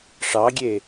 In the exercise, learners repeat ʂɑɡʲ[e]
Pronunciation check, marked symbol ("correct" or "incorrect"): correct